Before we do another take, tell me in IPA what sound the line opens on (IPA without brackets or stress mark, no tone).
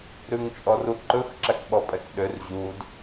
ɾ